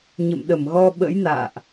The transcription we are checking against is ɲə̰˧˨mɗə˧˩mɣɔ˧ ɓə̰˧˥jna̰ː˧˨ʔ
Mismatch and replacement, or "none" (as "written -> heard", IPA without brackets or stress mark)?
none